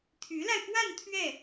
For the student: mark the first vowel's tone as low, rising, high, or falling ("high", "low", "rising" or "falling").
rising